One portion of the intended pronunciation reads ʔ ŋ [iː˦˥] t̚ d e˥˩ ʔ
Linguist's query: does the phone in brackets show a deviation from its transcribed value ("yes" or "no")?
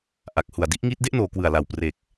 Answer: no